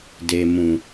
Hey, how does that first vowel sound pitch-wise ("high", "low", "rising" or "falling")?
low